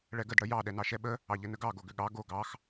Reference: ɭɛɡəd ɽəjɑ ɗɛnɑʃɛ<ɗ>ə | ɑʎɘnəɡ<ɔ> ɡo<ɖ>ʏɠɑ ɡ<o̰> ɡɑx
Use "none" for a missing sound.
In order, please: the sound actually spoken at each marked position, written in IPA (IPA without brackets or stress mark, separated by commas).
ɓ, ɑ, ɡ, o